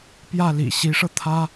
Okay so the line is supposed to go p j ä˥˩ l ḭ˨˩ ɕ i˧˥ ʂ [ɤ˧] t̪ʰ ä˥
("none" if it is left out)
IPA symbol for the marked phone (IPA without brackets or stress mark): ɤ˧